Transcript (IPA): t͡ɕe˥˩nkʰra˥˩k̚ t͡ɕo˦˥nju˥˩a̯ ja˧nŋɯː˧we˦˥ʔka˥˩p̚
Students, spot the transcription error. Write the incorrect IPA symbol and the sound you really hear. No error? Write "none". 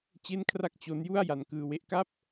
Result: ŋ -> k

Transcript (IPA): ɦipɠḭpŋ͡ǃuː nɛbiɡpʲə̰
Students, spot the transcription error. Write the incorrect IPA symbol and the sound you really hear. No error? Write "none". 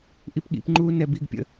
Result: ɦ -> ʔ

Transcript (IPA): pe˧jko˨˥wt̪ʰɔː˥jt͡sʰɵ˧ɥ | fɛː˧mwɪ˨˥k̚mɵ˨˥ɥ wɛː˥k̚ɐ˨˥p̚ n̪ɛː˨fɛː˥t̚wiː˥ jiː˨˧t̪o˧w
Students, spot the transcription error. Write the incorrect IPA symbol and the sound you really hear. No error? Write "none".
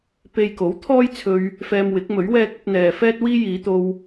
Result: none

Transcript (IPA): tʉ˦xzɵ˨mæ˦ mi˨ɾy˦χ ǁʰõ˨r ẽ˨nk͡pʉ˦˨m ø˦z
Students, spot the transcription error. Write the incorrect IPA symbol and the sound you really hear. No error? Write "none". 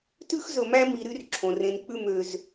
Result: χ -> r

